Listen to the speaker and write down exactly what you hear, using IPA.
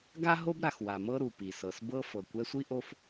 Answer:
ɡ a˥ ɦ o˦ b ɾ a˩ x w a˩ m ɤ˥ ɾ u˩ p i˩ s ɤ˩ s b ɤ˦ f ɤ˩ kʷ ɛ˦ sʷ i˥ ʔ o˦ f

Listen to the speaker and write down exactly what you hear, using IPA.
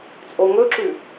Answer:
t͡sʼ o ŋ ɵ ǁ ʉ

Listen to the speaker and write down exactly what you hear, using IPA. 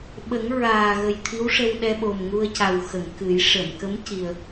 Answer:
ɓ ə˨˩˦ ŋ ɹ aː˨˩ ɣ ə˨˩ j t̪ʰ i˧˥ w ʂ ə˧ w ɗ ɛ˧ ɓ o˨˩ m ŋ u˧ ə̯ c a˨˩ w x ə˨˩˨ ŋ k ɨ˨˩˦ j ʂ ə˨˩˨ m k ə˧˥ m c i˨˩ ə̯

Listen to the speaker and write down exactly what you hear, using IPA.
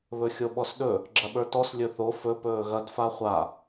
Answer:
β ɵ xʲ o ɓ ɔ s ɗ ɵ | ɡ͡ǁ ɐ ɓ ə˞ t ɔ s lʲ ɵ θ o f ɵ p ɵː ɣ ɐ d f a χʷ a

